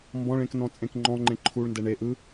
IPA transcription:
m b ɔ̃ ɭ ẽ k n ɔ̃ t͡sʼ ẽ k ŋ͡ǃ ɔ̃ ŋ͡ǃ ẽ ǃʰ u ɭ n d ɛ ɳ e ʔ ɯ

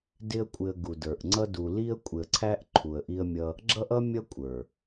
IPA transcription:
d ɪ˦ ə̯ kʷʼ ɪ˧ ə̯ ɡ u˨ d ə˞˨ ʔ ŋ͡ǀ ʌ˦ d u˧ l i˦ ə̯ kʷʼ ɪ˧ ə̯ ǀʰ æ˦ ʔ ǃʰ u˧ ə̯ ʔ i˦ ə̯ mʲ ʌ˦ | ɡ͡ǁ ʌ˦ ʔ ʌ˦ mʲ ʌ˦ kʷʼ ə˞˨

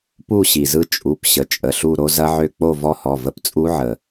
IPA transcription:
p u˥˧ ɕ i˩ z ɯ˦˥ t͡ʃʼ u˩˧˩ p ɕ ə˩˧˩ t͡ʃʼ ə˩˧˩ ɬ u˥˧ ɾ o˦˥ z ɐ˦˥ ʕ ø˥˧ k͡p o˥˧ v ɔ˦˥ h ɔ˩˧˩ v ə˥˧ p t͡sʼ u˦˥ ʕ ə˩

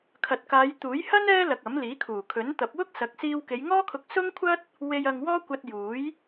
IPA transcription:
kʰ ɐ˨ t̚ k aː˨˧ j t̪ uː˨˥ j h ɐ˥ n ɛː˥ l ɐ˨ k̚ ɐ˨˥ m l iː˨˥ kʰ uː˨˩ kʰ ɵ˨˥ n t̪ ɐ˨˥ p̚ w ʊ˥ k̚ s ɐ˨˥ k̚ s iː˧ w k e˨˧ j ŋ ɔː˥ kʰ ʊ˧ k̚ s ʊ˥ ŋ kʷʰ ɐ˥ t̚ | w e˧ j ɐ˧ ŋ w ɔː˥ kʷ ɐ˧ t̚ j uː˨˥ j

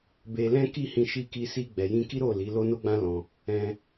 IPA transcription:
b e˧ l ɛ̃˦ k i˦˨ h ĩ˧ ʃ i˧ k i˧ s i˧ ɡ͡b ɛ˨ j ĩ˧ k i˦ ɾ o˦˨ l i˨˦ l o˦ n o˦ ɡ͡b ã˦ l ɔ̃˧ | ɛ̃˧

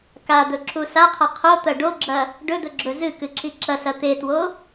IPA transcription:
k a d̪ ɵ ǁ u s a qʰ ɐ qʰ o t̪ ɐ ɖ o ɡ͡ǁ ɐ | ɖ ɵ d̪ ɵ ɡ͡ǁ ɵ z ɨ k ɨ ǁ i ǁ ɐ s ɐ t̪ e t w o

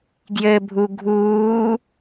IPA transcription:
ɡ j ɘ bʱ u ɡʱ uː

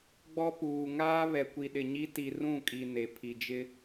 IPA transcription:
ɡ͡b ɔ˦ p uː˨ ŋ aː˦ β ɛ˨ kʷ i˨ ɗ ɪ˨ ɲ i˦ t i˨ r ũ˦˨ kʼ i˨ n e˨ pʰ i˨ d͡ʒ ɪ˦

